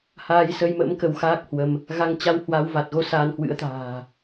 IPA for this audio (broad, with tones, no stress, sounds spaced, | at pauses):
h aː˧ j s ə˧ j m ə̰˧˥ m k ə˧ w x aː˦˥ k̚ h w ə˧ m | ɣ a˧ ŋ t͡ɕ a˧ w h w a˨˦ w v a˨˩ t̚ ɣ o˧ s a˧ n h w ɨ̰˧˥ ə̯ t̪ a̤ː˨˩